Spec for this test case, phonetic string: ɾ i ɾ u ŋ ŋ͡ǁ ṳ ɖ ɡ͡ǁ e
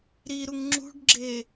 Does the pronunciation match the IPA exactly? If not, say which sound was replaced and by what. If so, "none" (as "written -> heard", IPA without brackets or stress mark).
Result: none